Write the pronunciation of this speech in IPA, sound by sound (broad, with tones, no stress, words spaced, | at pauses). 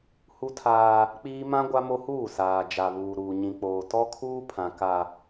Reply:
hu˦tʰaː˦ | k͡piː˦ mã˦ ɡʷa˦mo˦huː˦˨ saː˨d͡ʒa˨ βuː˨ɾuː˨ ɲĩ˨k͡poː˨ tɔ˦kʰuː˦pʰã˨ ka˨